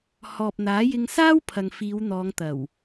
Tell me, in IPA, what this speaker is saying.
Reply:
h ɔː˨ p̚ n̪ aː˨˥ j ɪ˧ ŋ s aː˥ w pʰ ɐ˨ ŋ f iː˨˧ w n̪ ɔː˨˧ ŋ t̪ ɐ˨˩ w

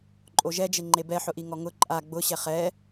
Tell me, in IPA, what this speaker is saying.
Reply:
ǃʼ o ʒ ɛ d͡ʒ e ŋ͡ǃ e b ɛ ħ ʊ ʔ i ŋ ɔ ŋ ʊ ǃʼ a ɡ͡b ʊ ɕ ɛ χ ɛ

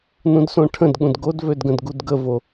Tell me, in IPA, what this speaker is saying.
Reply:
n ũ d s õ ʈʰ ə̃ d ɠ ũ d ɡ o d v ø d ɡ ə̃ d ɡ u d ɡ ə v o

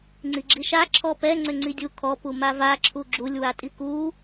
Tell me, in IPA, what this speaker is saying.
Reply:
ŋ͡ǀ i ɡ͡ǁ i ʃ a ǁʰ ɔ p ɛ ŋ͡ǀ ʏ ŋ͡ǀ i dʲ u kʰ ɔ p u m a v a ǁʰ u ɡ͡ǁ u lʲ w a tʼ i k u

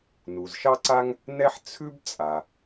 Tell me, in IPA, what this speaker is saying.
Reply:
n u˩ z ʃ ɑ˥ ǀ a˥ ŋ | n ɛ˥ ħ t͡sʰ ʉ˥ b t͡sʼ a˩

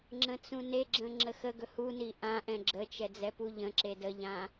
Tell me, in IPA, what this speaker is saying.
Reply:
ŋ͡ǁ ə̃ t͡s ũ n e ɡ͡ǁ ə̃ ŋ͡ǁ ə x ə ɡ ɵ h u n i ʔ ã ʔ ɛ̃ ɡ͡ǁ ə t͡ʃ ɛ d͡z ɛ p u ʎ ə̃ ǁ e d ə ʎ ã

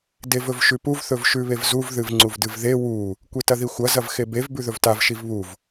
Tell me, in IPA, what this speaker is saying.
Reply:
d e v ɵ v ʃ ʉ p u v θ ɵ v ʃ ʉ β e v z u v ð ɨ v ŋ͡ǀ u v d ɨ v ð e w u | kʷ e t ɐ ð i xʷ ɐ z ɐ v x e b e v b ʉ ð ɵ v t a v ʃ i v β u v

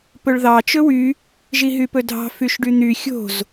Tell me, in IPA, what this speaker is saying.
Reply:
p ɵ ɭ ð ɑ t͡ʃ ɵ w y | ʒ i ɦ y p ɵ dʱ ɑ̤ f y ʃ ɖ y n̪ y xʲ o̤ z

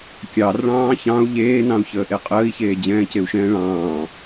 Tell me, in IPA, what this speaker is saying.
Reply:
kʲ ɑ r ɭ ɑ̃ː ç ɑ̃ u̯ ʎ eː n ɑ̃ u̯ ç əː ʔ e qʼ əː i̯ ç eː d͡ʑ ɛ̃ː c e u̯ ʃ ɛ̃ː ɭ ɑ̃ː

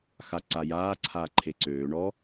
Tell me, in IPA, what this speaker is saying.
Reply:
x a ǀ a j aː ǀʰ aː ǃʰ e ǀ øː ɳ ɔ

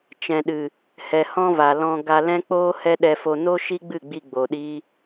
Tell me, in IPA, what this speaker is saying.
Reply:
t͡ʃ ɛ̃˨ ɗ ɨ˨ | h ɛ˨ h ɔ̃˦ v a˨ l ɔ̃˧ ɡ a˧ l ɛ̃˦ k͡p oː˦ h ɛ˦ ɗ ɛ˧ f o˧ n o˦ ʃ i˦ ɡ͡b ɨ˦˨ ɡ͡b i˧ ɡ͡b o˨ ɗ i˦

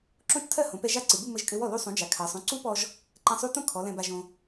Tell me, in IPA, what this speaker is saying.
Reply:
ǁ õ˦˥ t͡ʃ tʰ ɜ˥˧ h õ˩˧ p ɛ˧ ʒ a˥˩ ǀ ɨ˩˧˩ b u˥˧ m ɘ˧ ʒ kʼ ɘ˧ w ɔ˥˩ l u˧ sˤ ũ˩˧ d͡ʒ a˩˧ kʰ ɜ˩˧ sˤ ũ˩˧˩ ǀ u˦˥ p ɔ˧ ʒ | ǃ ɛ̃˧ sˤ u˦˥ t õ˥˧ kʰ ɔ˩˧ l ɛ̃˧ b a˧ ʒ õ˧

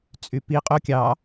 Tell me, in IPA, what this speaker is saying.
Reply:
t͡sʼ y p i qʼ o kʲ ɑ

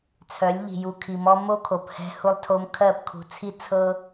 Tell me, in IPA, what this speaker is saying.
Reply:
t͡sʰ œ˨˦ lʲ ʎ i̤˨ j u˨ kʰ i˨ m ɔ˦ m o˦ kʰ o˨ p h ɛ̤˦ h u˦ lˠ tʰ o˦ m kʰ ɜ˦˨ p kʰ ṳ˨˦ t͡sʰ i˦ t͡sʰ ɤ˦

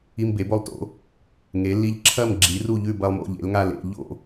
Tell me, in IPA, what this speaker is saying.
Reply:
i˦ m b e˩˥ b o˥˨ lˠ t o̰˩˥ | ŋ e˩˥ lː i˦ ʎ ǁʰ ɐ˥˨ m ɡ͡ǁ i˩˥ r u˥˨ ʎ ʉ˥˨ b ɐ˦ lˠ m o̰˥˨ ʎ ḛ˩˥ l ŋ a˥˨ l ḛ˥˨ ʎ o̰˥˨

